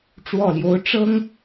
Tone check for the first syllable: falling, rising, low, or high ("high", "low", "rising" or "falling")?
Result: low